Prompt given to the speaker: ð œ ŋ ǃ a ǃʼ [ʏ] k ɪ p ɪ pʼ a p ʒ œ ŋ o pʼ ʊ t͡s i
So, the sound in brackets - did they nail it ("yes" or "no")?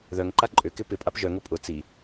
yes